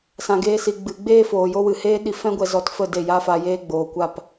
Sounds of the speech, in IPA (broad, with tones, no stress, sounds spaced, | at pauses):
s ã˧ ɡ eː˦ s i˧ ɡ͡b ɨ˧ ɡ͡b eː˦ f oː˨ j o˦ w ɨ˨ h eː˦ ɗ i˧ f ɛ̃˦ ɡʷ ɛ˧ z ɔ˧ t f ə˦˨ d e˦˨ j a˦ f a˧ j eː˦ ɡ͡b oː˨ kʷ a˦˨ p